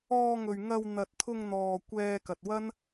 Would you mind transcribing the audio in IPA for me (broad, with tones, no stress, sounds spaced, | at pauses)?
ɔː˧ ŋ ɵ˨ ɥ ŋ ɐ˧ w n̪ ɐ˨ t̚ t̪ʰ ʊ˧ ŋ n̪ ɔː˨ kʷ ɛː˧ k ɐ˨ t̚ w ɐ˥ n